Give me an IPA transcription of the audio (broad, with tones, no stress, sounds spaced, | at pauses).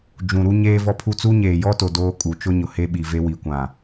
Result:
d͡ʒ ũ˨ ɾ u˦ ɲ eː˦ v ɔ˦ pʰ u˦ t͡s u˦ ɲ eː˨ j ɔ˦ t o˨ d oː˦ kʼ u˨ t͡ʃ ʊ˦ ɲ ʊ˨ h e˦ ɓ i˨ v e˦ w i˨ kʷ ã˨